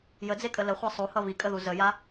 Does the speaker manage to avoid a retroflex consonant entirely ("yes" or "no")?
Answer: yes